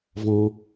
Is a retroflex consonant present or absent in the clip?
absent